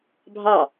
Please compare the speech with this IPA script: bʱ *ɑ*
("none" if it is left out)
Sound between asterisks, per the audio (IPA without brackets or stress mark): ɑ